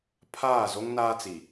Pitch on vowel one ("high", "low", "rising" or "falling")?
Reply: falling